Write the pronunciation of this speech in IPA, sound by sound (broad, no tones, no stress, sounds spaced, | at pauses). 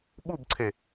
ɓ u b ǀʰ e